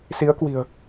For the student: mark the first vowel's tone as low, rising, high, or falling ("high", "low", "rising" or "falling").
rising